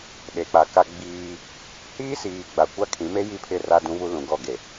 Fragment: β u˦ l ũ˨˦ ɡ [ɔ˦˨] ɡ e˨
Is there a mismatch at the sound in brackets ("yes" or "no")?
no